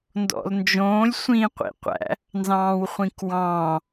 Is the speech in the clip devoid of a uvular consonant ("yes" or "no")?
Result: no